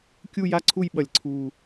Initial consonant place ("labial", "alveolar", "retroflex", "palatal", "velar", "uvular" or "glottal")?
velar